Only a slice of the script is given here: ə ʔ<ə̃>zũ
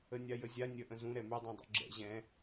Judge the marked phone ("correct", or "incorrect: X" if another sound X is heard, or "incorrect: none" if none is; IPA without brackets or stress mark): correct